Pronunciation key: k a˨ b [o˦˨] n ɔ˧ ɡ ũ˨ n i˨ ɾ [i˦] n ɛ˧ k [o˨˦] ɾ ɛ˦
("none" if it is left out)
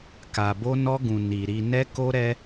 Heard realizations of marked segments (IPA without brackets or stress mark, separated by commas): o˧, i˨, o˦